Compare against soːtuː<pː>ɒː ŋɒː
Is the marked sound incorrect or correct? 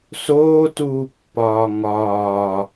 correct